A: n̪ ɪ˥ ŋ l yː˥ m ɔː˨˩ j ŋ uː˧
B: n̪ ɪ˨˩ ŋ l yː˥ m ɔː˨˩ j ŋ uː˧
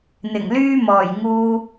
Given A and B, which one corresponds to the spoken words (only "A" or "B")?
B